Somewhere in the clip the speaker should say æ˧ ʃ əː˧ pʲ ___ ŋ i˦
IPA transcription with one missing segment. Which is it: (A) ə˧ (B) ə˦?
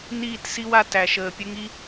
B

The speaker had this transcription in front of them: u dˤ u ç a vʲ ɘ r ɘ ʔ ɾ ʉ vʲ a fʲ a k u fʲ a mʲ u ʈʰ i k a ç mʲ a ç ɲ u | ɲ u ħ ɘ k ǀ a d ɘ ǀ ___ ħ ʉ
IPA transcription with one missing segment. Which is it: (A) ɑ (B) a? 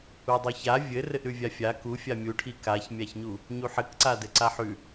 B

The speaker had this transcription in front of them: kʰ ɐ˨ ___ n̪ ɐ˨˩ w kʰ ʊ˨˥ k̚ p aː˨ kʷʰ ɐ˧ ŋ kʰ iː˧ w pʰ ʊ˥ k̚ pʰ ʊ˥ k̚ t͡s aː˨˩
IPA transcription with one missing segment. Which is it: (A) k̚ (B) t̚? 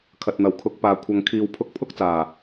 B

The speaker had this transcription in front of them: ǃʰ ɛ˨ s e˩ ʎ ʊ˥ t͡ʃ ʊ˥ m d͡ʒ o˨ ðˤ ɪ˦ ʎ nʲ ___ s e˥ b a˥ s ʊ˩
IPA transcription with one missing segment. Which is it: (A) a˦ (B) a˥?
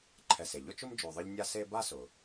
B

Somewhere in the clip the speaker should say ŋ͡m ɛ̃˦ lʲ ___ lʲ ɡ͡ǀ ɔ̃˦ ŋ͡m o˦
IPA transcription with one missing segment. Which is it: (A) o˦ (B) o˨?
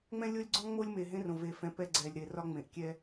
A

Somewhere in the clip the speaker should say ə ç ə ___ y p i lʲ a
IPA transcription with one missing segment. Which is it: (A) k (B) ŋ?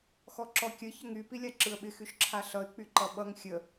B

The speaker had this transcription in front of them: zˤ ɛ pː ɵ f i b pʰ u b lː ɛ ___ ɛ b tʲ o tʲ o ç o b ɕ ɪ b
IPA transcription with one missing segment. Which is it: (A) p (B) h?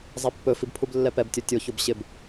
A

